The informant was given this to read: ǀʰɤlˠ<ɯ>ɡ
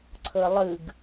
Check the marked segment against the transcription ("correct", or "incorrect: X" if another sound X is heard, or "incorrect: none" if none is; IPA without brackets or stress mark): correct